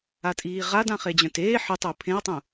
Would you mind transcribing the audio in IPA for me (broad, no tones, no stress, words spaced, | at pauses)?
atʼiːʁad ãχed͡ʑœ̃teː ħitˤʊː pʰẽɐ̯tˤũ